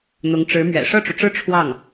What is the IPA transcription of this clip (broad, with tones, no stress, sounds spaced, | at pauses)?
n̪ ʊ˧˥ ŋ ʈ͡ʂ ɻ̩˧˥ m ɥ ɛ̰˨˩ ʂ ɤ˥˩ ʈ͡ʂ u˩ ʈ͡ʂ ɻ̩˥˧ ʈ͡ʂʰ w ɑ˥˩ ŋ